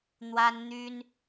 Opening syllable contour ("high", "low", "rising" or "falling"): high